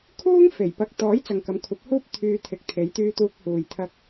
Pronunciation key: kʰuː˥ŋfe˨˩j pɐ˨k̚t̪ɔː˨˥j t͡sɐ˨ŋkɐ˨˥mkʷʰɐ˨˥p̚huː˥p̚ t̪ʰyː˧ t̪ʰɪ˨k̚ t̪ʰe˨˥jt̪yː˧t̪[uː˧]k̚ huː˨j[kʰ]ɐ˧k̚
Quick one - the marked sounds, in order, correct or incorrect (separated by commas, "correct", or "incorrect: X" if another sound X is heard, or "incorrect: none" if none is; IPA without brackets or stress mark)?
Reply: correct, incorrect: t̪ʰ